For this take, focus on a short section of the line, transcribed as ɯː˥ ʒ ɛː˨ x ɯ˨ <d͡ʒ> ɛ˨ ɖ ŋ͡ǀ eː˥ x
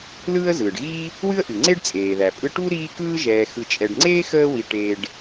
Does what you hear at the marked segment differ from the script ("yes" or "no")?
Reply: yes